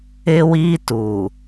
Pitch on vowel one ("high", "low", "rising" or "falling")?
high